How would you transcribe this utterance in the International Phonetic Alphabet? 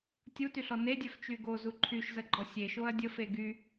tʲutyɬɔ nedʲœf t͡ʃyɡozu ǃʰyʃzəɡ͡ǃɔ sʲeʃoɐ̯ dʲəf eɡy

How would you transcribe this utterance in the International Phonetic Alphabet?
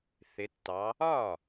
θɪ˨˦tːɑ˨˦ | ɒ˥˩

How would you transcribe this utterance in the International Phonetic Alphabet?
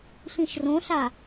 ɬĩʃrõɬa

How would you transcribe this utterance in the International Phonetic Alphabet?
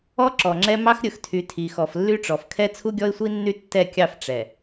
ɔ˦ǁɔ˨ŋ͡ǁɛ˦ mɑ˦xɾʲɵ˨xtʰy˨ tʰi˨xɔ˨flːy˦ʈ͡ʂɔ˨f kʰɛ˦t͡sʰu˦ɡʲɔ˦ɪ̯sʷi˦ nːy˦tːɛ˦˨kʲɑ˦˨f ʈ͡ʂɛ˨

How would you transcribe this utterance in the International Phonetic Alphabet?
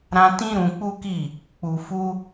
ɾã˧tĩ˦ ɾũ˧k͡pu˦ki˦˨ | k͡pu˧fu˦

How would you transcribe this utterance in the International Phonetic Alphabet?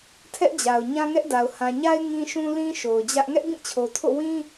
tʰɛ˦ʔd͡ʑa˨ʊ̯ ɲã˦ŋɛ˦ʔda˨ʊ̯ hã˨ɲa˦ɪ̯ ŋĩ˦ʃũ˦lĩ˦ ʃo˨ʊ̯d͡ʑä˦ʔ ŋɛ˦ʔbĩ˦˨t͡ɕʰo˨tʰo̰˦˨ wĩ˦

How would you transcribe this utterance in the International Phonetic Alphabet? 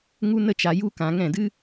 ŋu˦nə˦t͡ʃa˧ ju˦kã˧ ŋɛ̃˦˨dɨ˦

